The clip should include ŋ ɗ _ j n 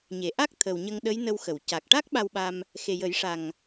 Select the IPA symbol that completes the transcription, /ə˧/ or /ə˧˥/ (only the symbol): ə˧˥